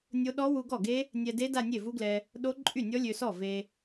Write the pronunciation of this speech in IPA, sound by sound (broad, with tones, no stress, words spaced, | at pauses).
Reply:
nʲo˦˥ ɗɔ˦˥wu˧ ɡɔ˥˩ɡe˦˥ | nʲɛ˧de˦˥ da˥˧nʲe˥˩vu˦˥ɡlɛ˧ | ɗo˦˥ ǃʼy˥˩nʲɔ˦˥ lʲø˧sɔ˥˩ ve˧